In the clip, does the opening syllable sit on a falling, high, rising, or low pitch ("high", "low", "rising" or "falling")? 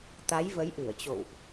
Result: rising